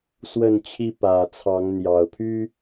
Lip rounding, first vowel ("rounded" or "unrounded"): unrounded